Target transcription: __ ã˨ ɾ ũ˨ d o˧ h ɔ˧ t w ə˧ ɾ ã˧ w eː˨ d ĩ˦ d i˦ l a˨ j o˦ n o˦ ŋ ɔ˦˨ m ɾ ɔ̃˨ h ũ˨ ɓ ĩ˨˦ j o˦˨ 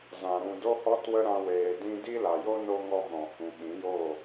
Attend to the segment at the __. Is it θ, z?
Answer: z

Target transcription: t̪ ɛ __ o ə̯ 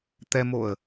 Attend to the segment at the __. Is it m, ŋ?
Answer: m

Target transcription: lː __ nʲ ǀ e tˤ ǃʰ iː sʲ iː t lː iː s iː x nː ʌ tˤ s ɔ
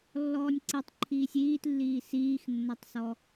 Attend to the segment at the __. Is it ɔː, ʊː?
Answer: ɔː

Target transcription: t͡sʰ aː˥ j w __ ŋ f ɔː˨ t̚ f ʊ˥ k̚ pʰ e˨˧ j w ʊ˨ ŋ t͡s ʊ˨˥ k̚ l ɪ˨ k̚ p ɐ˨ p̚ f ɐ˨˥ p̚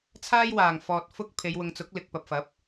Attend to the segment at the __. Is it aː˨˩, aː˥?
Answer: aː˨˩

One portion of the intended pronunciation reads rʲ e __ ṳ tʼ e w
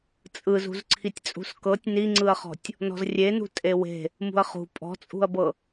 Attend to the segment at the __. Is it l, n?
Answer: n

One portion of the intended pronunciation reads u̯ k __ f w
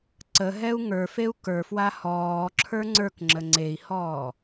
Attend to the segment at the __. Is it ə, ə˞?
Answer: ə˞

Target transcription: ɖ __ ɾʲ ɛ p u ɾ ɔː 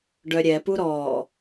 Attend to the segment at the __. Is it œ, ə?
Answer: œ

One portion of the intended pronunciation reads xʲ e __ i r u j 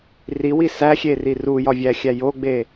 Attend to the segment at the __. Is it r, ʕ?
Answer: r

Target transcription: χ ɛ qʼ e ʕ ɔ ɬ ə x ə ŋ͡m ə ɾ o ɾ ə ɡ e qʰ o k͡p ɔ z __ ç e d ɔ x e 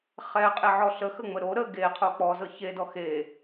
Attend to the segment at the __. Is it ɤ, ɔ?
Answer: ɤ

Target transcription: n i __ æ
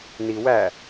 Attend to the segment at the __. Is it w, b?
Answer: w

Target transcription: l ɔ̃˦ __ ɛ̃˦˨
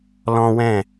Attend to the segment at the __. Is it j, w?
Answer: w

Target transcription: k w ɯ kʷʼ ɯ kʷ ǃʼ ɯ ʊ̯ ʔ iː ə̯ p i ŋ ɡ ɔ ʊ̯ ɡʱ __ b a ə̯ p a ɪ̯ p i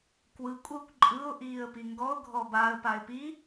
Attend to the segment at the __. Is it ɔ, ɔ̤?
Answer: ɔ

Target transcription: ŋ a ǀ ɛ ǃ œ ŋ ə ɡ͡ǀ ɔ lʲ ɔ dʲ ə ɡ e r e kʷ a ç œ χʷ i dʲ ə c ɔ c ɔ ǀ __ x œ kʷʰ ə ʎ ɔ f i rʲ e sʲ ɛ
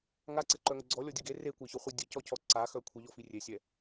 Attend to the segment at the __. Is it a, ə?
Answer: a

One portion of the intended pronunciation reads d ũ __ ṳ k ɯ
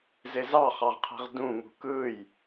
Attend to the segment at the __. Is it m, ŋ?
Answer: ŋ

